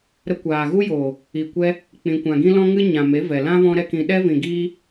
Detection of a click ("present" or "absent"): absent